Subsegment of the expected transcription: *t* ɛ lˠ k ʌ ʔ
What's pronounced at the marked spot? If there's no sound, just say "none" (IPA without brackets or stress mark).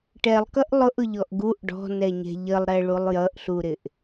ʈ